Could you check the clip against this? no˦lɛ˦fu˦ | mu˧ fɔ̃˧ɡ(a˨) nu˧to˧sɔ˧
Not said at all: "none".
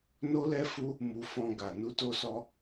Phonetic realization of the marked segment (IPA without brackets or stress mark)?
a˨